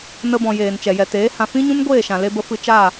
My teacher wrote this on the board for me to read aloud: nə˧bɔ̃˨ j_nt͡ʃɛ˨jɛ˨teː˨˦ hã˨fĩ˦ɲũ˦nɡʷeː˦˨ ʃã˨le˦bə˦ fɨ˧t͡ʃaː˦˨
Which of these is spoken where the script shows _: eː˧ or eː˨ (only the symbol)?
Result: eː˨